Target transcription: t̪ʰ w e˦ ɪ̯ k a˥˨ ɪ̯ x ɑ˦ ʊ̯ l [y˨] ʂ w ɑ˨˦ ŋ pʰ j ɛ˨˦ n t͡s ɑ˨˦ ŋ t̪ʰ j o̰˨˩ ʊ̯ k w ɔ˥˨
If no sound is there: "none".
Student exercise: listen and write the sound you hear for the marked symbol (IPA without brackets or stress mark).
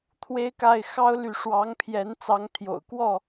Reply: y˨